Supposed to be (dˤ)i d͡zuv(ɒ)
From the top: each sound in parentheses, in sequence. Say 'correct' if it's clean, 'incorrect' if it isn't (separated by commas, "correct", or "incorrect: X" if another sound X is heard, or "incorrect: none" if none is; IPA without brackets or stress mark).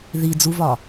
incorrect: ð, correct